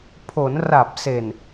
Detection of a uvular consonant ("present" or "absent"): absent